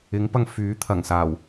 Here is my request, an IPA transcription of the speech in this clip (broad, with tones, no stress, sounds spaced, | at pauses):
ɪ˨˧ ŋ p ɐ˧ ŋ f yː˨˥ t̪ʰ ɐ˨˩ ŋ s aː˨˩ w